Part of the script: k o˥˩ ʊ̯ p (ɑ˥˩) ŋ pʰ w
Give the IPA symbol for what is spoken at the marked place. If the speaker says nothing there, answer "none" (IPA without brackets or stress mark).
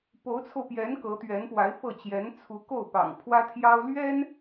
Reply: ɑ̰˨˩